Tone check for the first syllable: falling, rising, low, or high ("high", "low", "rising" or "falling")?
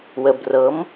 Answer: low